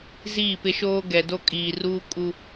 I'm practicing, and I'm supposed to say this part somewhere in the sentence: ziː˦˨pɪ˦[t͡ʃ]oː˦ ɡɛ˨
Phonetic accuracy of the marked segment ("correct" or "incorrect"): incorrect